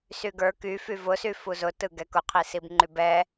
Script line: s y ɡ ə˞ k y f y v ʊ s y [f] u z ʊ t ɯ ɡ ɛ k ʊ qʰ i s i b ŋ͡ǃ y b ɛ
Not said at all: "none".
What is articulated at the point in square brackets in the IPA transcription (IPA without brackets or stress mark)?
f